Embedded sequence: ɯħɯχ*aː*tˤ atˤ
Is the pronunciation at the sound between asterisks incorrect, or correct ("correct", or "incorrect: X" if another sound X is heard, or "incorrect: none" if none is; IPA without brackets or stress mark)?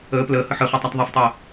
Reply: incorrect: əː